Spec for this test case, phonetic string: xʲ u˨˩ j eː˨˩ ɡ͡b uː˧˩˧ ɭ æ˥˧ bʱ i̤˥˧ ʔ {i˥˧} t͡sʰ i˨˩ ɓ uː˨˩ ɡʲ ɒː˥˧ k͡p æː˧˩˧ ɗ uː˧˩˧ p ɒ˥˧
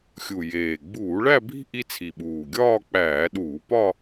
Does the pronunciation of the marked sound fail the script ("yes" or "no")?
no